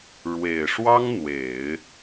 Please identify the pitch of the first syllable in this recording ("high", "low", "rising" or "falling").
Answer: low